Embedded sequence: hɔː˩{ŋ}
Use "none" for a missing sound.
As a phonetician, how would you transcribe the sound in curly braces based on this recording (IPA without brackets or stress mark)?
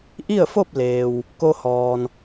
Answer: n